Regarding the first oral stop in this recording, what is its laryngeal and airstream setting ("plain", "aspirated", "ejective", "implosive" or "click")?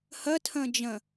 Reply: aspirated